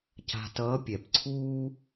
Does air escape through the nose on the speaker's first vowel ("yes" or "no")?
no